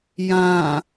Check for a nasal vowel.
present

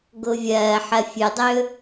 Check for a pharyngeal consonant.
present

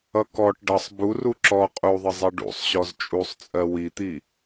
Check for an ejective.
present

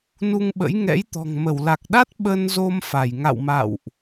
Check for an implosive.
present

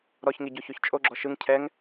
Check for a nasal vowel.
absent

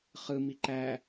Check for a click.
present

